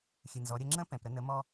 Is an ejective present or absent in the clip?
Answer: absent